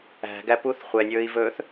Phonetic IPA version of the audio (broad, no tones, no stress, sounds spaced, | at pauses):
æ̤ ɡ æ p u θ χʷ ɛ nʲ ɵː i̯ v ɵː θ